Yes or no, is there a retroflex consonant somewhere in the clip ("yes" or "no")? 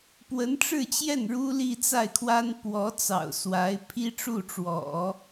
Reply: yes